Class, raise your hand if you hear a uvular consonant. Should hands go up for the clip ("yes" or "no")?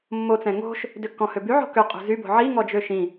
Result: yes